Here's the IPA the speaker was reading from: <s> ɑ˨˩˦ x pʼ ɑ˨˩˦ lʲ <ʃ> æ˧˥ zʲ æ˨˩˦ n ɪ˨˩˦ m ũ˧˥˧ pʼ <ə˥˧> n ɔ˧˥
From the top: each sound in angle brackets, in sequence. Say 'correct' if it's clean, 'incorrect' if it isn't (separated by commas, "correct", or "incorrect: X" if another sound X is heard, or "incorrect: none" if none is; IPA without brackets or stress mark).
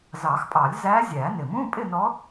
incorrect: z, incorrect: z, incorrect: ɪ˥˧